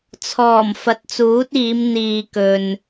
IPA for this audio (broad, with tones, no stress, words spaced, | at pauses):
t͡sʰɔː˨˩m fɐ˨˥t̚t͡suː˨˥t̚iː˨˧m n̪iː˨kɵ˨n